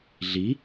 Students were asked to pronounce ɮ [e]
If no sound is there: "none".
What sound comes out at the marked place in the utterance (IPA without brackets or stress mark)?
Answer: i